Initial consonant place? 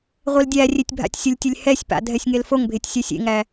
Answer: uvular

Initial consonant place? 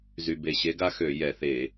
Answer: alveolar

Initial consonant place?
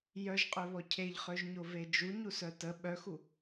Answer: palatal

